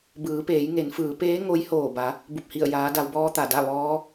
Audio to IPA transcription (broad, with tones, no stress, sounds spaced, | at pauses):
b ɯː˩˧ p eː˩˧ j ŋ e˩˧ n f ɯː˩˧ p eː˧˥ ŋ o˧˥ j h oː˧˩ b a˩˧ | b u˧˩ p̚ h i˧˩ ə̯ j aː˩˧ d a˩˧ w b ɔː˧ t̪ a˧˩ d a˥˨ ʋ ɔː˧˥